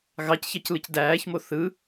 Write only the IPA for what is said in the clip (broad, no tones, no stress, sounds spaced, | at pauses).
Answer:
ɣ ɑ c ç ɑ c l ɯ c d æː ç m o θ ɯ